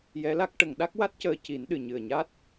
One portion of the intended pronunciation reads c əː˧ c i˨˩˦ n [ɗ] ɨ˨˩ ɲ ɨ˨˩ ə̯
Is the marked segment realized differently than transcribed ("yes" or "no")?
no